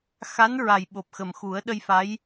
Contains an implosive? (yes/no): yes